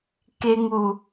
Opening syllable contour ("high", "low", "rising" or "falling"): high